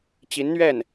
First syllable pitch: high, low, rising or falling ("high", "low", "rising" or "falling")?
rising